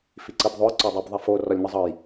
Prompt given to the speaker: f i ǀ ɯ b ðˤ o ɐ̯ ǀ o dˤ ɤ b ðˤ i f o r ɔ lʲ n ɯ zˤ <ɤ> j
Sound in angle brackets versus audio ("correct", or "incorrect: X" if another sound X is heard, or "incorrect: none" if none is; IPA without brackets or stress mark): correct